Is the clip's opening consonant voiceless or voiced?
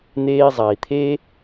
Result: voiced